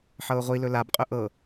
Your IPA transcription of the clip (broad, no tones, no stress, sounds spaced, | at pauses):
ħ ɤ ʊ̯ ʁʷ i l ɵ l a b qʼ ɵ ʔ ɤ